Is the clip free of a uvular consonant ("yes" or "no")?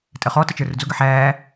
no